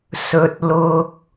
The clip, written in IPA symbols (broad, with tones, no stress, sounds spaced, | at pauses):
s ɵ˨ t̚ l ʊ˧ k̚